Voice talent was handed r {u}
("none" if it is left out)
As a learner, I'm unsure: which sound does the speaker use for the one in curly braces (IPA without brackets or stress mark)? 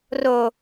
o